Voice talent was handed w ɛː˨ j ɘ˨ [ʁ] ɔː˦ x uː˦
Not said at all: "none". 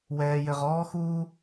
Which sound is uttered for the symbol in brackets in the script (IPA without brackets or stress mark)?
ʁ